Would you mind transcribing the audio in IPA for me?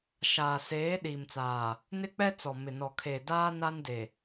ʃ aː˨ s eː˨˦ ɗ iː˨ m t͡s aː˨ | n ɪ˦ k͡p ɛ˦ t͡s ɔ˨ m ɪ˨ n ɔ˨ kʰ eː˨ d aː˦ n a˦ n d e˨

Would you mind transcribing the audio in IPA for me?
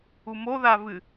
u m o ð a v ɨ

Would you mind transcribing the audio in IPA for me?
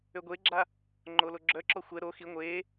ø ɡʷ e ɡ͡ǁ a | ŋ͡ǃ o l o ɡ͡ǁ œ ǁ ɔ xʷ ɛ ɾ o x i ŋʷ e

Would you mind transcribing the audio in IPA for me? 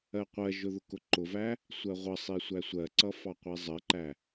ɜ qʷ ɜ ʒ ʊ ð ʊ k ʊ ǃ ʊ v æ | sʷ ɜ ʁʷ ʌ sˤ i sʷ æ sʷ ɜ ǀ ʌ f ɑ qʷ i zˤ ɜ ǃ æ

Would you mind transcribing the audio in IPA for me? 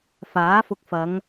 f aː˨˥ f ʊ˧ k̚ f ɐ˨˧ ŋ

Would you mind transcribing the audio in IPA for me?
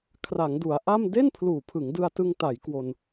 kʰ r a˩˦ ŋ d u˩˦ a̯ ʔ a˥˩ m d e˥˩ n pʰ l uː˨˩ pʰ ɯ˩˦ ŋ d ɯ˧ a̯ t ɯ˧ ŋ t a˩˦ j k w o˧ n

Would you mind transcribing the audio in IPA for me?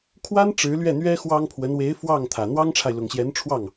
kʰ w a˥ n ʈ͡ʂ ɻ̩˧˥ l ɥ ɛ˥˩ n̪ ɥ ɛ˥ x w ɑ˥ ŋ pʰ w ə˧˥ n w e˧˥ ɪ̯ f w ɑ˥˩ ŋ t̪ʰ ä˨˩ n̪ w ɑ˥ ŋ ʈ͡ʂʰ a˨ ɪ̯ l ʊ˨˩ ŋ ɕ j ɛ˧˥ n ʈ͡ʂʰ w ɑ˥˩ ŋ

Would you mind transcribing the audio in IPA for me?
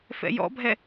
f ɛ̰ j ɔ̰ bʱ ɛ

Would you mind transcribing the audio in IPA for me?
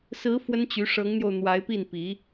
s ɹ̩˧˥ f w ə˥ n t͡ɕ y˧˥ ʂ ɤ˧˥ ŋ n̪ j o˧ ʊ̯ n̪ w a˧˥ ɪ̯ p i˥˩ n p i˧˥

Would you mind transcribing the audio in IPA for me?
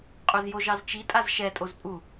qʼ o z j o ʒ ɑ z t͡ʃ i tʼ a z ʃ ɛ tʼ o z pʼ u

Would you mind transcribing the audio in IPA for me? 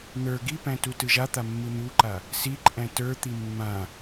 n̪ ə˞ ɡ i p æ̃ t u t ɯ ʒ a t̪ a mː ɯ n̪ u ǃ a | s i ǃʼ æ̃ t ə˞ t̪ i mː ã

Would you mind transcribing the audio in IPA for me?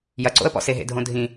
j ɐ ǀ o̰ ə̯ p ɔ̰ s e ɦ ḛ dʱ õ dʱ ĩ

